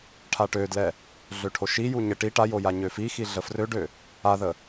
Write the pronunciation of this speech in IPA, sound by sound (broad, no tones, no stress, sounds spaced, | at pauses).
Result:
ʈʰ a ʈ ø d l ɛ | ɮ ø ʈʰ o ʃ i j u ɲ ə ʈ i ʈ a j o j a ɲ ø f i x i ɮ ə f r ø ɖ ø | a ð ə